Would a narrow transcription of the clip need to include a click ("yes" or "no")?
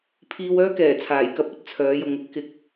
no